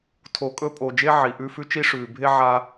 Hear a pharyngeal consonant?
yes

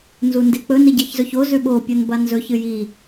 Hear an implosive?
yes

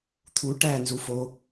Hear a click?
no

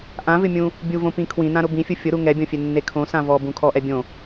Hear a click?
no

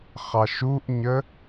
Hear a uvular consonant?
yes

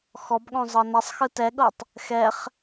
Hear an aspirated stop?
no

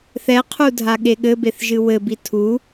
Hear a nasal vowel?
no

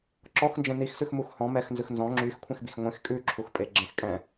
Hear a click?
yes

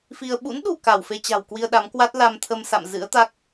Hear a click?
no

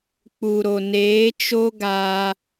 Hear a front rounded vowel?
no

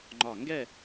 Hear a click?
yes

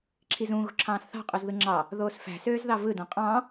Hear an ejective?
yes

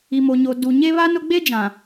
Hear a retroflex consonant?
no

